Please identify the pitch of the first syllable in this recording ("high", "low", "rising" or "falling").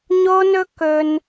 high